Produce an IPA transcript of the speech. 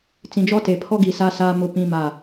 t͡s ĩ˨ d͡ʒ ɔ˦ t e˨ pʰ ɔ˦ ɡ i˨ s a˦ s aː˦ m ʊ˦ p ĩ˦ m a˦˨

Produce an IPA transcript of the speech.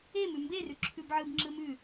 e m ʉ m b e r ʉ ǁʰ ʉ b ʕ ɯ b ŋ͡ǁ ɯ m ʉ

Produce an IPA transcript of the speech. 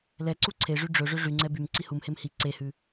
l ɛ ǀ u ǀʰ e ʐ y ɖ͡ʐ ɵ ʐ ø ʐ y ŋ͡ǀ ɛ b y m ǀ i h u m h e m h i ǀ e h ʉ

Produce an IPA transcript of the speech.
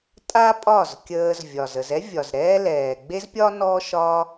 tʼ a˦ pʼ ɒ˦˨ z kʲ əː˧ z vʲ ɒ˨ z ə˨ z ɛ˦ vʲ ɒ˨ z ɾ ɛː˦ l ɛː˨ ɡ͡b e˦ z pʲ ɒ˦ n ɔ˦ ʃ ɒ˦

